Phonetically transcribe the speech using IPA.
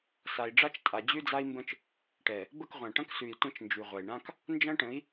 s a˨ i̯ ɖ͡ʐ a˦ t͡ʃ tʼ a˨ d͡ʑ ʉ˦ d͡z a˦ i̯ m b ə̃˦ t͡ʃ | ʈ ɛ˨ | b ə˦˨ k ʁʷ ã˨ ʈ ɐ̃˦ k s ʉ˨ i̯ tʷ ɐ̃˦ t͡ʃ n d͡ʒ ʉ˨ ʁʷ ɐ˨ i̯ ɳ ã˦ k | n d͡ʒ ɐ̃˦ ʈ ə̃˨˦ i̯

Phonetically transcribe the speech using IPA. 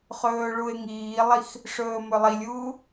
χ ɵː ɭ u e̯ ŋ iː lˠ i x | ʂ ɵː m ɵ lˠ i lʲ uː

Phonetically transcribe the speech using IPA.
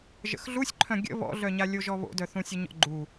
ʒ ə̰ x ɮ u sʲ ǃʰ œ̃ ɡʲ ə̰ β ɔ̰ ɮ œ ɲ a lʲ o ʒ ɔ β o̰ d œ θ ũ sʲ ə ɲ ɔ̰ ɡ͡ǃ u

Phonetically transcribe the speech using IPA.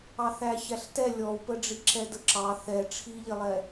ɑ θ æ ç æ ɬ t ɛ lʲ ɔ w p ə ɖ͡ʐ i ǁ ɛ d ə ǁ ɑ θ ɛ ʈ͡ʂʰ i ʎ ɪ lˠ ɛ

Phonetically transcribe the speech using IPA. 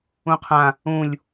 ũ qʰ ã | ũ lʲ

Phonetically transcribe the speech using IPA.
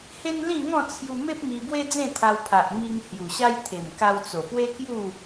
h e˦ n l ĩ˥˧ ŋ ɔ̃˥˧ t͡sʰ j u˧ m e˦ p̚ m i˧ b w e˦ d͡z ẽ˥˧ t̪ʰ a˧ w pʰ a˨ ʔ m i˧ ŋ h j u˨˩ ɕ a˦ j t̪ʰ e˨˩ m k a˧ w t͡s o˨˩ p w e˦ k j u˥˧

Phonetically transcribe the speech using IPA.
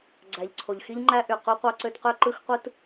ɡ͡ǀ æ˨ ʎ ǀʰ o˨ ʎ x i˦ ʎ ŋ͡ǃ æ˦ ʔ y˨ q u˦ qʷ ɑ˦ ǀ ø˦ t q ø˦ ǃ ɯ˦ x qʷ ɯ˦ t

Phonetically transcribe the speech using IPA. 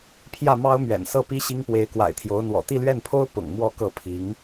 pʰ j ä˥˩ m ɑ˥ ʊ̯ m ɥ ɛ̰˨˩ n s ɤ˥˩ p i˥ ɕ i˥ ŋ p w e˧˥ ɪ̯ k w a̰˨˩ ɪ̯ t̪ʰ j o˧˥ ʊ̯ n̪ w ɔ̰˨˩ t̪ i˥˧ l ɥ ɛ˥˩ n pʰ o˥ ʊ̯ p ʊ̰˨˩ ŋ m w ɔ˥˧ k ɤ˥˩ pʰ i˧˥ ŋ

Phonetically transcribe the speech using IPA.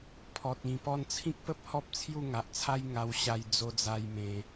pʰ ɔ˨ t̚ ĩ˨˩ p ɔ˧ n t͡sʰ ĩ˦ k̚ p ə˦ p̚ h ɔ˦ p̚ t͡sʰ j u˥˧ ŋ a˨ ʔ t͡sʰ a˦ j ŋ a˧ w ɕ a˧ j d͡z o˧ d͡z a˧ j m ẽ˧

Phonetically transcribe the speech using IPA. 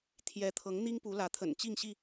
t̪ʰ j ɛ˨˦ t̪ʰ ɤ˨˦ ŋ n̪ i˦ ŋ p u˨˦ l ä˨˦ t̪ʰ ə̰˨˩ n t͡ɕ i˥˨ ŋ ɕ i˥˨

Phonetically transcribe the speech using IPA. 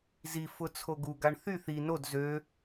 z i f ʊ t͡sʰ o ɡ u ɡ a ɳ θ y θ i n o d z ø

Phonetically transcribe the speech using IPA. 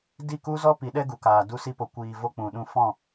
d i˦˨ k u˦ z ɔ˦ p i˨˦ ɗ ɛ˦ ɡ u˨ k aː˨ d u˧ s i˧ p o˨ kʷ iː˨ v o˦ k͡p ũ˨ ɗ ũ˦˨ f ɔ̃˦˨

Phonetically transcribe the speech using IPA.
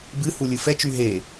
b ɨ h u lʲ ɨ f ɛ t͡ʃ y ɦ e

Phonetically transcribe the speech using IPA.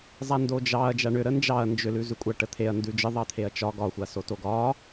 zˤ a n d o d͡ʒ ɑ ɐ̯ d͡ʒ a ɳ ʏ ɾ ə n d͡ʒ ɑ ɐ̯ n d͡ʒ ʏ l ʉ z ʉ kʷʼ a ʈ ə t̪ʰ e ɐ̯ n d ʉ d͡ʒ ə ðˤ ɑ t̪ʰ e ɐ̯ t͡ʃ ɒ ɡ ɒ xʷ a s o t o ɡ ɒ

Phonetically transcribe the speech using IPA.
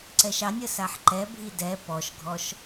ǀ ɛ ʃ ɑ nʲ ə s a ħ ǃ ɛ bʱ i d ɛ p ɔ ʃ ɡʱ ɔ ʃ

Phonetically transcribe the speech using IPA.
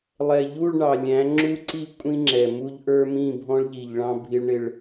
lˠ ɛ˨ ʎ u˦˨ ɭ ɳ ɑ˨ lʲ æ̃˨˦ ŋ͡ǁ u˦ ǀ i˦ kʷʼ ĩ˦ ŋ͡ǁ ɛ˨ m u˦ ʎ ʔ ə˞˦ m ĩ˦˨ bʱ ɔ̃˦ ɭ ʎ i˨ ʎ ɭ ɑ̃˦ bʱ i˦ ɭ ɳ ɪ˦ ɭ

